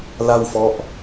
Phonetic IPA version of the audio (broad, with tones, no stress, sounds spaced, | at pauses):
l a˥˩ w f ɔ˦˥ ʔ